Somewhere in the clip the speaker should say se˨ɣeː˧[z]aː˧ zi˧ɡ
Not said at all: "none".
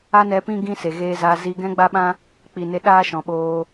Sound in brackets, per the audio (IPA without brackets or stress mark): z